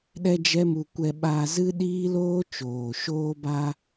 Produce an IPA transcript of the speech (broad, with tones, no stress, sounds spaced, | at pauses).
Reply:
ɗ ɛ˦ d͡ʒ ɛ˦ m u˧ kʷ ɛ˧ ɓ aː˧ z ɨ˦ ɗ iː˦ l oː˦ t͡ʃ oː˨ ʃ oː˧ b a˧